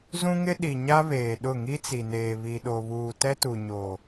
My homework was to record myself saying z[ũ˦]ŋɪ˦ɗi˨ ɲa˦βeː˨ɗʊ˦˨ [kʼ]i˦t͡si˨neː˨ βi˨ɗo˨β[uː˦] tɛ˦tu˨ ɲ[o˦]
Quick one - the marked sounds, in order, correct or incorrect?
correct, incorrect: ŋ, incorrect: uː˨, incorrect: o˨

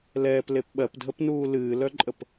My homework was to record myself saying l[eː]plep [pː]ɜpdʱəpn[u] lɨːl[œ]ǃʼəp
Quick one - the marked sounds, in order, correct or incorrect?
incorrect: ɛː, incorrect: ɓ, incorrect: uː, correct

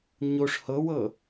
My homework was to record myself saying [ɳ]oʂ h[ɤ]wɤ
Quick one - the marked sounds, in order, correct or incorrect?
incorrect: ɲ, correct

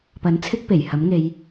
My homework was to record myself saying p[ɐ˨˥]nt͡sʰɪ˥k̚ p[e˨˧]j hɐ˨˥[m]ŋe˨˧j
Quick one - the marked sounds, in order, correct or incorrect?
correct, incorrect: e˨˩, correct

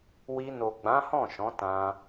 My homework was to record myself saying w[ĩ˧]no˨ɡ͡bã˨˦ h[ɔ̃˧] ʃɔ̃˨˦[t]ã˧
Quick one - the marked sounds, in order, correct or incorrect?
incorrect: i˧, incorrect: ɔ̃˦˨, correct

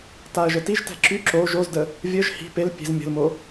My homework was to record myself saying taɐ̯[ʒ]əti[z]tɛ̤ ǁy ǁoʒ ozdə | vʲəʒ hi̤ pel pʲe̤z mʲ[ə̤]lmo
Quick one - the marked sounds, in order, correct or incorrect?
correct, incorrect: ʒ, correct

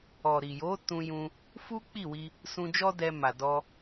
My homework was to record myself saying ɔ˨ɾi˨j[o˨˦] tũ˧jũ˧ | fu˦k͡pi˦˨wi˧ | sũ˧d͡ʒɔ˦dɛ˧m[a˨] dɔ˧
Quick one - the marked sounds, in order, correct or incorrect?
correct, correct

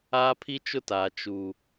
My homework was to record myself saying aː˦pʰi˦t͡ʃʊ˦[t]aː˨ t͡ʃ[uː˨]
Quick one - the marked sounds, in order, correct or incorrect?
correct, correct

